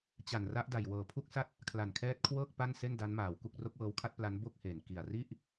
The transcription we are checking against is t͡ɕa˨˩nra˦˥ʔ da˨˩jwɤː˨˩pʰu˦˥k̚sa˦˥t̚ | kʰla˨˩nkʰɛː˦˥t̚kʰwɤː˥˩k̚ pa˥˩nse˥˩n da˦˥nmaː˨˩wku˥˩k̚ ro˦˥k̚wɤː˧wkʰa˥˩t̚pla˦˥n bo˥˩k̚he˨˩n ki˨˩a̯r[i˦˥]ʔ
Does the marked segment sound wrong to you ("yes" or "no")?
yes